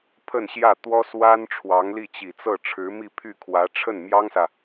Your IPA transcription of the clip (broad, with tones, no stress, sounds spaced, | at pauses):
pʰ ə˥˧ n ɕ j ä˥˩ t̪ w ɔ˥ s w a˥ n ʈ͡ʂʰ w ɑ˧˥ ŋ l i˥˩ t͡ɕ i˨˩ t͡s ɤ˥˩ ʈ͡ʂʰ ɻ̩˧˥ m i˥˧ pʰ y˥˩ kʰ w ä˧˥ ʈ͡ʂʰ ə˥˩ n m j ɑ˥ ŋ s ä˨